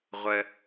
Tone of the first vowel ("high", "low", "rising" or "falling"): low